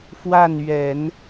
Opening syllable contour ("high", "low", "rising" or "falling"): falling